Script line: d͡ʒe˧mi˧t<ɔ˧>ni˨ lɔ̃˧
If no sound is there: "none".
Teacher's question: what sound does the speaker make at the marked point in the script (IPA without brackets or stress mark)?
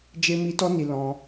ɔ˧